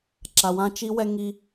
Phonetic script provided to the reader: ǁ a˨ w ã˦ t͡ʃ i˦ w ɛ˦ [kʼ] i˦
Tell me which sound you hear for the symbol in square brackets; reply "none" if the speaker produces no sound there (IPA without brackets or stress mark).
ŋ